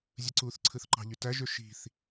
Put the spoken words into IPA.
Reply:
zʲ ɯ ǀ u θ ǀʰ ɯ θ ǃ ɑ̤ ʎ y t æ ʒ ø ʃ i̤ θ

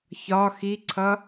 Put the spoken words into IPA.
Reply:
ç ɒ x i ǀʰ ʌ

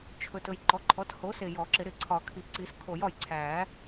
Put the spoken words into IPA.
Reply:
t͡ʃʰ ɵ˨ t ɵ˨ j ǃ ɔ˩˥ ǃʰ ɔ˩˥ t h o˩˥ s e˨ j ɔ˨˩˦ ǁ ɪ˨˩˦ ɾ ɪ˨˩˦ ǀʰ ɒ˨˩˦ kʰ i˨ ǀ i˨˩˦ s kʰ o˨˩˦ j ɒ˨ j ǀʰ æ˨˩˦

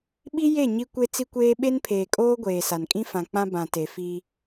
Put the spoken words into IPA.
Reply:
ɓ i˦ j e˦˨ ɲ i˦ kʷ e˦ t͡s i˦ kʷ eː˦ ɓ e˦ n pʰ eː˨ kʼ oː˦ ɡʷ eː˨ s a˨ n kʼ ĩ˦ f ã˨ k͡p ã˦ b ã˨ t e˨ f i˦

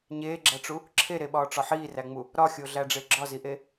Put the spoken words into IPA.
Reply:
ɲ eː ɡ͡ǁ æ ʈ͡ʂ u | ǁʰ e ɾ e ɓ ɒː ʈ͡ʂ ɒ ħ iː r æ ŋ͡m u | ɾ ɒ xʲ o ɮ æ ɖ͡ʐ e ɡ͡ǁ ɒ z i ʔ e

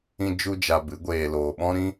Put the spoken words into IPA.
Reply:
ĩ˦ d͡ʒ u˦ d͡ʒ a˧ b ɨ˨˦ ɡʷ eː˧ l oː˧ ɓ ɔ̃˦ ɾ ĩ˦

